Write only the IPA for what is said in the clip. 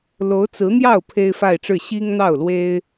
lo˧˥ʊ̯t͡sɹ̩˧˥n̪jɑ˥˩ʊ̯ pʰe˥ɪ̯fa˥˧ɪ̯ʈ͡ʂɻ̩˥˩ ɕi˥ŋ n̪ɑ˥˩ʊ̯lwe˥ɪ̯

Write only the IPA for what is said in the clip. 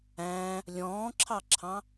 æ̃ | lʲɔ̃ːǁʰɑǁʰɑ̃

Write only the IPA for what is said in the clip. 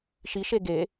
ʃiʃe ɡe

